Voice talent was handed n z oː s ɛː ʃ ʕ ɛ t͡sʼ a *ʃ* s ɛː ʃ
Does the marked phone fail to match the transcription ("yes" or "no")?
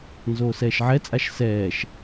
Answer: no